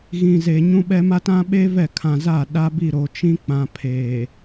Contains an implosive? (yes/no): yes